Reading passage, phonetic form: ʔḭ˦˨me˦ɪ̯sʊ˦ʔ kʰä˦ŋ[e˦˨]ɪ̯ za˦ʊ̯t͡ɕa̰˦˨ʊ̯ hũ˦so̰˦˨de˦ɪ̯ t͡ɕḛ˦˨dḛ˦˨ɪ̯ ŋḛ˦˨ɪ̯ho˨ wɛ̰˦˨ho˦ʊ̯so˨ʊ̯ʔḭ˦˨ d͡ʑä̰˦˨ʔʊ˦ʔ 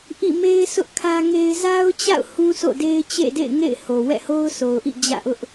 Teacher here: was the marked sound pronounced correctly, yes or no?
no